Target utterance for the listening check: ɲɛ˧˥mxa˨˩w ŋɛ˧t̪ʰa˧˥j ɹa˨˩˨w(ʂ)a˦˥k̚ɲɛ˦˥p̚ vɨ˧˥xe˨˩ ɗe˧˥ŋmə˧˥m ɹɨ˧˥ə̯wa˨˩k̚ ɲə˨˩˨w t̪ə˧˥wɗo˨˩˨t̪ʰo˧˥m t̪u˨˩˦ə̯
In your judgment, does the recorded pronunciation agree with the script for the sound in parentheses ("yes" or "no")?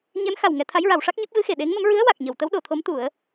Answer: yes